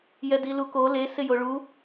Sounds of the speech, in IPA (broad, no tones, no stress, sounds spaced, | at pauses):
j ɛ d i l u k o l e s ɪ j o ɭ u